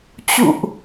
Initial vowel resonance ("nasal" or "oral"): oral